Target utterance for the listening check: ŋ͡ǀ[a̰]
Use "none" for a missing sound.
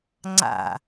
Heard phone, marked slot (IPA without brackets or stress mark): a̰